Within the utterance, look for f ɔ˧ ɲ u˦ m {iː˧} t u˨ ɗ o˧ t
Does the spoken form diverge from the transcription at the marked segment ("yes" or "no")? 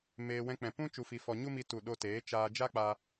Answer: yes